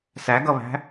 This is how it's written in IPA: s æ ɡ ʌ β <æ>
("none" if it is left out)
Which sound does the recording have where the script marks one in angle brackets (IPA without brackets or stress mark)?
æ̤